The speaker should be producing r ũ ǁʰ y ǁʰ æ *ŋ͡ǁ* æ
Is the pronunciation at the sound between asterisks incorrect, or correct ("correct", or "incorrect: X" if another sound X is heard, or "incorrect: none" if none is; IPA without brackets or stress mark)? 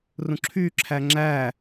correct